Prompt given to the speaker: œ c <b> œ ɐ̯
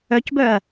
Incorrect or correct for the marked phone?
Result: correct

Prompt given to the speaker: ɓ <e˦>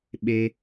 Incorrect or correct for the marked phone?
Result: correct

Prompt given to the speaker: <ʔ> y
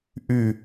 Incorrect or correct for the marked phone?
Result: correct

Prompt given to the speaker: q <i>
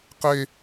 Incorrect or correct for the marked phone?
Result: incorrect: e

